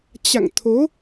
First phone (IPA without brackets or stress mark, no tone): t͡ɕ